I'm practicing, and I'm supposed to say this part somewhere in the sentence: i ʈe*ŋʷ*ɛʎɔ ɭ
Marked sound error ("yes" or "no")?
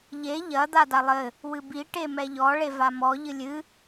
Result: yes